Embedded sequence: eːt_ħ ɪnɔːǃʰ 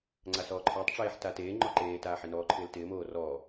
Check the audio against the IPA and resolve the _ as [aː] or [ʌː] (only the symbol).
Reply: aː